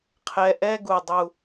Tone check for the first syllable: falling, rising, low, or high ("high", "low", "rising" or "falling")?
low